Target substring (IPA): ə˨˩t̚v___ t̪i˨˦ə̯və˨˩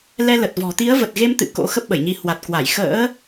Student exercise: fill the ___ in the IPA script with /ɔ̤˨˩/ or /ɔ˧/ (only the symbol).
ɔ̤˨˩